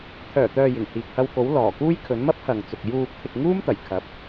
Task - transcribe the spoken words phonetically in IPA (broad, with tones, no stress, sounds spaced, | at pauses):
t̪ʰ œː˨˩ t̪ œː˨ j ɪ˨˩ ŋ h iː˨ k̚ h ɐ˧ w k o˨˥ w l ɔː˨˩ k uː˥ j kʰ ɵ˨˥ n m ɐ˥ p̚ h ɐ˨ ŋ t͡s ʊ˨ k̚ j uː˨ p̚ t̪ʰ ɪ˨ k̚ ŋ uː˥ m t̪ ɐ˨˩ j kʰ ɐ˨˥ p̚